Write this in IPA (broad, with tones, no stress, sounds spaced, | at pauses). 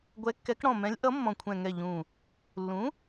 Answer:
ɡʷ ɛ˨˥ kː ɛ˨˥ k ɽ ɔ̃˧˩ m ɛ̃˨˥ lʲ ʔ ʌ˨˥ mː ɔ̃˧˩ kʷʰ ɛ̃˧˩ ŋ ɛ˧˩ ʎ ũ˧˩ | lː ũ˨˥